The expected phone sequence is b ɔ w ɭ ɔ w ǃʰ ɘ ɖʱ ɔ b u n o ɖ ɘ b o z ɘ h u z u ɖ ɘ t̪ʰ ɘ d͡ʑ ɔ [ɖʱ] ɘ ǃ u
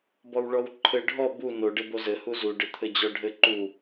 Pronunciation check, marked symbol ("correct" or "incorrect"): correct